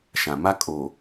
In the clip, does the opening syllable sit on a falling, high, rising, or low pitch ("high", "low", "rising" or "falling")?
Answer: low